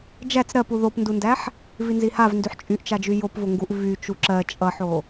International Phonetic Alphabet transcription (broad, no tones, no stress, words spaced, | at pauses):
d͡ʒæt͡s ɾɜp uðopndundæħ | vinzihavndyħ t͡ʃʼyʔt͡ʃad͡ʒy jopvoŋɡuʔ vy t͡ʃuǁɜ t͡ʃʼʌħo